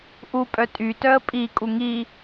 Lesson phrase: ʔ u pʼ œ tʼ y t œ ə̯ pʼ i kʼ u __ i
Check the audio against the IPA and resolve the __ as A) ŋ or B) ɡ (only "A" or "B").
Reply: A